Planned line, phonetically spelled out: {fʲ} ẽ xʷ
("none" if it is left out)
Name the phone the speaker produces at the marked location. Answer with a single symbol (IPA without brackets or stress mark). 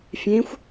fʲ